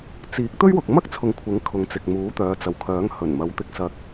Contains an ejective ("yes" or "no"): no